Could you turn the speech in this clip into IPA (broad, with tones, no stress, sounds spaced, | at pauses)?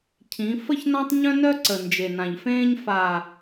cʰ ĩ˨˦ f ə˦ ç n ã˦ tˤ ɲ œ̃˦ n œ˦ ǀ ə˨ n d͡ʒ e˨ n ã˨ ʎ f ẽː˦ ɲ f a˨